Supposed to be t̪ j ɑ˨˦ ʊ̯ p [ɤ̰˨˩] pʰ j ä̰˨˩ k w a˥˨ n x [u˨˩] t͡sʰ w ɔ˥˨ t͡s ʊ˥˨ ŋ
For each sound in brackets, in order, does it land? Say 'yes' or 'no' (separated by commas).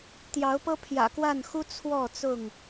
no, no